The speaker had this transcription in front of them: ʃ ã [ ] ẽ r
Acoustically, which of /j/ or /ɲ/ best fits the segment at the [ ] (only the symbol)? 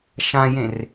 j